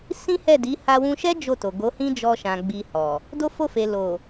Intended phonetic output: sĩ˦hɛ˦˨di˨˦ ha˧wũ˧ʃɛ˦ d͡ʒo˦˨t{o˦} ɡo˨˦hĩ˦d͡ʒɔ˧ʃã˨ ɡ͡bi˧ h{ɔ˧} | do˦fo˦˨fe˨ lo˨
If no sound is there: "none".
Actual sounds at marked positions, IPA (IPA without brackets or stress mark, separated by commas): o˨, ɔ˨